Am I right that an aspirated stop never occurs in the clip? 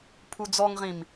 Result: no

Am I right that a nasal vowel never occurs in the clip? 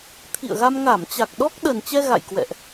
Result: yes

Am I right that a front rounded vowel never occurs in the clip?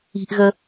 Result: yes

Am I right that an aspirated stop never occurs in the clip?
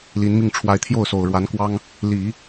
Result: no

